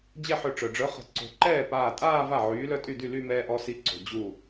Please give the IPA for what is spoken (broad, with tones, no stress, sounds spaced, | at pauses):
d͡ʑ ɛ˥˧ ħ ø˧ ʈ͡ʂ œ˩ ɖ͡ʐ œ˨˥ χ ə̤˧˩ ǀ o̤˧˩ ǃ ɛː˥˩ p aː˧˩ tʼ aː˥˧ v a˥˩ ʕ yː˨˥ l œ˥˧ tʼ y˥˩ d y˥˩ l y˥˧ m ɛː˧ ʔ ɔ˧ s i˨˥ ǀ o̤˩ d͡ʑ u˧˩